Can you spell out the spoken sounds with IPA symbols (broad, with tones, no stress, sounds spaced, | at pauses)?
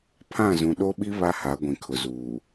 pʰ ã˦˨ z ũ˨ ɗ o˦ ɓ i˦ β a˦ h a˨˦ ɡʷ ĩ˨ kʰ ʊ˨ z uː˨